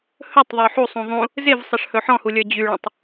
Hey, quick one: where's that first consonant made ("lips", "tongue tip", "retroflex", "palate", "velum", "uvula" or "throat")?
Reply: throat